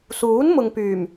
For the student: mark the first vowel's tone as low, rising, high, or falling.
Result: rising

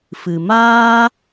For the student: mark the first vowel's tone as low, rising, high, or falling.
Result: low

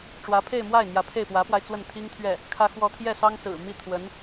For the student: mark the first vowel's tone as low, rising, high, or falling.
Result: rising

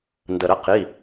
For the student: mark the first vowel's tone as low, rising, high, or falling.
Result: low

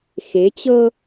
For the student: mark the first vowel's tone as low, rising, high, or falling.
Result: rising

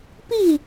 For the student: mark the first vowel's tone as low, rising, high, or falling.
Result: falling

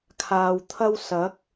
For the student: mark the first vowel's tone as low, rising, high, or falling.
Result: low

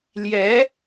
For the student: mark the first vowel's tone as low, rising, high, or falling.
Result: rising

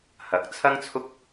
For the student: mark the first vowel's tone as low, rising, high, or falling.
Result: rising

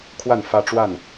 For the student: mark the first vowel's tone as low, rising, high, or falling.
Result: falling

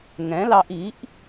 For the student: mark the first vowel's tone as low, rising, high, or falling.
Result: rising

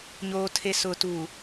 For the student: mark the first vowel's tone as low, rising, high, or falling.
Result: low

